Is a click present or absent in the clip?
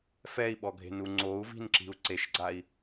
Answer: present